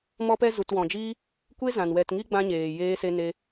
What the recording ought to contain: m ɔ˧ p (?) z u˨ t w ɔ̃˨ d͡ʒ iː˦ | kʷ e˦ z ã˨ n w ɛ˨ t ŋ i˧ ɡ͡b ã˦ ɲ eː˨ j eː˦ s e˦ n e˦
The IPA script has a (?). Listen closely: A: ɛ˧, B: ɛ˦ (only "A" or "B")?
A